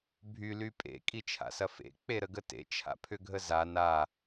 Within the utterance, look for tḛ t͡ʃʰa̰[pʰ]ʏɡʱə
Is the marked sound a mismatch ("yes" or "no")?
no